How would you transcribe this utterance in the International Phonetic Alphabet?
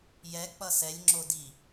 j ɛ k͡p ʌ s ɛ lʲ ŋ͡ǁ o d i

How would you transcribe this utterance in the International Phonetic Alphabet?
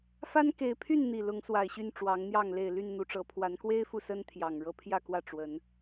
f a˦ n k e˨˦ ɪ̯ pʰ y˥˨ n n̪ i˨˩ l ʊ˨˦ ŋ s w a˨˩ ɪ̯ ɕ y˥˨ n ʈ͡ʂ w ɑ˨˦ ŋ n̪ j ɑ˥˨ ŋ l e˥˨ ɪ̯ l y˥˨ n n̪ u˨˩ ʈ͡ʂ ɤ˨˦ pʰ w a˨˦ n k w e˦ ɪ̯ f u˨ s ə˦ n t̪ʰ j ɑ˨˩ ŋ ɻ ɤ˦ pʰ j ä˥˨ k w ä˥˨ ʈ͡ʂ w ə˨˦ n

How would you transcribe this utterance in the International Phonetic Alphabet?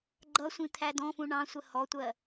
ɡ͡ǃ ʌ sʷ ĩ t̪ʰ æ d ɔ̃ f ũ ɳ ɑ̃ sʷ ə h ɔ tʷ ɜ

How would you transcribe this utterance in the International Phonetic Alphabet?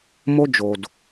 m o˦ d͡ʒ o˨ d

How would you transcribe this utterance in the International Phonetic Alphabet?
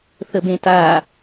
θ ə b ẽ t a

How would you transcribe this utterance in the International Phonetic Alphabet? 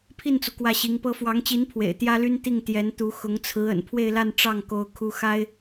pʰ i˥˩ n t͡s u˩ k w ä˥˩ ɕ i˧˥ ŋ p ɤ˥ f w ɑ˧˥ ŋ t͡ɕ i˧˥ n pʰ w ḛ˨˩ ɪ̯ t̪ j ä˥ l y˥ n t̪ i˥˩ ŋ t̪ j ɛ˧˥ n t̪ u˧˥ x ʊ˧˥ ŋ t͡sʰ ɹ̩˧˥ ə̰˨˩ n pʰ w e˥˧ ɪ̯ l a˥˧ n ʈ͡ʂ ɑ˥˩ ŋ k o˥ ʊ̯ kʰ u˥ x a˥ ɪ̯

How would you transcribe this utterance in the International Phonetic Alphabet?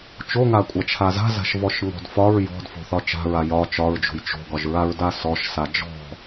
t͡ʃ o ŋ a kʷʼ a t͡ʃʰ a z a̤ z a̤ ʃ v ɔ ʃ ŋ ɔ̤ d f ɒ ɹ j ɔ̤ d f o̤ θ ɒ t͡ʃ a̤ ɹ a j ɒ t͡ʃ ɒ ɹ d͡ʒ o̤ j t͡ʃ o̤ ɡ ɒ ʒ ɹ a ɹ d a s ɔ ʃ s a d͡ʒ ɔ̤

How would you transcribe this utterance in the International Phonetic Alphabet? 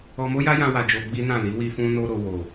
ɔ˧ m o˦ j a˦ j ã˦ w a˧ d͡ʒ o˧ ɡ͡b i˦ n ã˦˨ l i˨˦ w i˧ f ũ˧ n o˧ ɾ o˨ w o˨

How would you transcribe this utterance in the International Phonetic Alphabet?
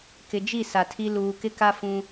k ɪ˨ d͡ʒ i˦˨ s a˨ tʰ i˦ l uː˨ k ɪ˦ k a˦ f ũ˦

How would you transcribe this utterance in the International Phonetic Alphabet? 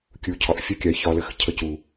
kʲ u˨ cʰ ɒ˨ ʔ fʲ ɒ˦ kʲ a˨˦ j ç ɒ˧ l ə˧ x cʰ ə˧ c u˨

